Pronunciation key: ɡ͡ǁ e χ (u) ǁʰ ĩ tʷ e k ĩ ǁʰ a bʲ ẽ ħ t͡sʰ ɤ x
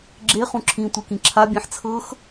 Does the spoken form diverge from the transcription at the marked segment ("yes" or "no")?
yes